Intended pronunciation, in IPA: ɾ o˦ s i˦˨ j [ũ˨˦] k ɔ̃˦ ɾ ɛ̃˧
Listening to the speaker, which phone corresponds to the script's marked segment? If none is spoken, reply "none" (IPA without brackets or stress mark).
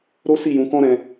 ũ˨˦